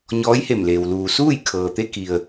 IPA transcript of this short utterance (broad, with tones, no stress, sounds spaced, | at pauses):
ɲ ɔː˧˥ j h e˧˩ m l eː˩ w l uː˩ s uː˥˨ j kʰ ɤː˩ t̪ e˧ k i˩ ə̯